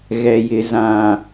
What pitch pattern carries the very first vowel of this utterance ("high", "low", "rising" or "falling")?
low